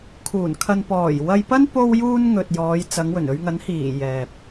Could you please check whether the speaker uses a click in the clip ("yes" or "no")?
no